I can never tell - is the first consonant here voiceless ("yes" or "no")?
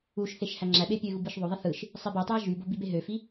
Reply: yes